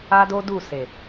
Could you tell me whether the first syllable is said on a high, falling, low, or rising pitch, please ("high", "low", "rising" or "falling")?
high